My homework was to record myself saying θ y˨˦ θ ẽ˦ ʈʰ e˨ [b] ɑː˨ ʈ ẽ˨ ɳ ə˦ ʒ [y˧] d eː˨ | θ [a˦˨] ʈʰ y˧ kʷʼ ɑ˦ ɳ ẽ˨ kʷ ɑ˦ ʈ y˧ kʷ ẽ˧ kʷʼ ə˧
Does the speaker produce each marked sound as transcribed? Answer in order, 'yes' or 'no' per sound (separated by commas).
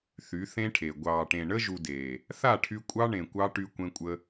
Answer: no, no, yes